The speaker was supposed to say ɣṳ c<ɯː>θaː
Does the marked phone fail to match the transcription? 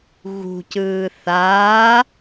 no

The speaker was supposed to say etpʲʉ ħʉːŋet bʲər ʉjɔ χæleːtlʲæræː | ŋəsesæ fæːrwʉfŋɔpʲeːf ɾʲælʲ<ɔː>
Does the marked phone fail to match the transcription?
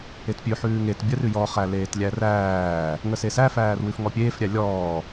no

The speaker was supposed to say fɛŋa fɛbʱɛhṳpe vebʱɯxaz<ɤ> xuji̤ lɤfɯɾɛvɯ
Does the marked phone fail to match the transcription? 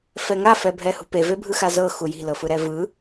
no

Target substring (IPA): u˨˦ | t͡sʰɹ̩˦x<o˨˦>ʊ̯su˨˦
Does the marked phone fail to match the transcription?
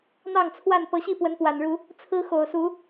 yes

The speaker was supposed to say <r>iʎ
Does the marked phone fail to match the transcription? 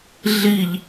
yes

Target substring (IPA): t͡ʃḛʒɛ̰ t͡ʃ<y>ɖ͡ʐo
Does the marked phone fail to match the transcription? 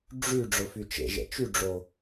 no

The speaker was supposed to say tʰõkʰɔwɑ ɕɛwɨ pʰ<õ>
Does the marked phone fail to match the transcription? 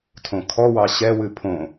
no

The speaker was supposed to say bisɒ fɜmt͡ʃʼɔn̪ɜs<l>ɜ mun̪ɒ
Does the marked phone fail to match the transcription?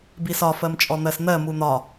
yes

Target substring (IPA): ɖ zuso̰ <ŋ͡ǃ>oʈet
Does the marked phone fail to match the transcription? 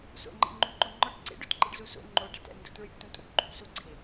no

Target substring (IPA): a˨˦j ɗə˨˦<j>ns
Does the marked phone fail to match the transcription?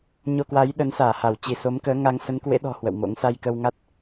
yes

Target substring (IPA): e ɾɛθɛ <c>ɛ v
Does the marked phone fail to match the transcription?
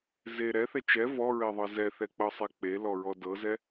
yes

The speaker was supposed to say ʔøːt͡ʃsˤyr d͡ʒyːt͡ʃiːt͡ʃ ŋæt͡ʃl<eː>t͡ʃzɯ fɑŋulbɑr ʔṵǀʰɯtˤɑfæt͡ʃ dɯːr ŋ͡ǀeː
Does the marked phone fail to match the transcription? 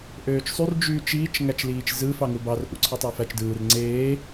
yes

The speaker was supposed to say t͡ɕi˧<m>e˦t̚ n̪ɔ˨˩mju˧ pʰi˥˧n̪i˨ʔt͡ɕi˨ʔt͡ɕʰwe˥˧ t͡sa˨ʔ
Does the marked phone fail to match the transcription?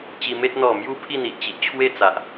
no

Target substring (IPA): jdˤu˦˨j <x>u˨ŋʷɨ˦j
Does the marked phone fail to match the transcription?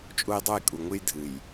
yes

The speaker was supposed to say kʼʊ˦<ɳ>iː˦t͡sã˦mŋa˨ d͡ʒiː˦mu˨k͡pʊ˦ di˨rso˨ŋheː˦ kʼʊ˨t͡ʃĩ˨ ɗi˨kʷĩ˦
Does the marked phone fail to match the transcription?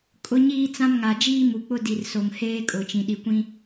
yes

